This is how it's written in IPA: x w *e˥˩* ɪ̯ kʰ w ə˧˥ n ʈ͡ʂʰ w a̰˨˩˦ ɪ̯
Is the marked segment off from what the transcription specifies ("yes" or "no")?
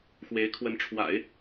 yes